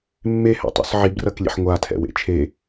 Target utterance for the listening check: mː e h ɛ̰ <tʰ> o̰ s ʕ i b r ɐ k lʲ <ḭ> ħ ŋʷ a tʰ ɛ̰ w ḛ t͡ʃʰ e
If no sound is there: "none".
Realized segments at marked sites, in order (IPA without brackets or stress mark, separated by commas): tˤ, ḛ